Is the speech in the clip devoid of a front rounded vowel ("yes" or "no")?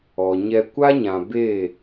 yes